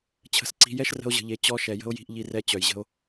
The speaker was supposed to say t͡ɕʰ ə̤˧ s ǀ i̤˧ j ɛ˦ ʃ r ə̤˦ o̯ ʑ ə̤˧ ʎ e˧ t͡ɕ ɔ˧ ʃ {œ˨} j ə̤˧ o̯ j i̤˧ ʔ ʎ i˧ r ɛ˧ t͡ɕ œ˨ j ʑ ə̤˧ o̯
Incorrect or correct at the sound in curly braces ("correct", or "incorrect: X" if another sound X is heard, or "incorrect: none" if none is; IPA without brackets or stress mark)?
incorrect: ɛ˨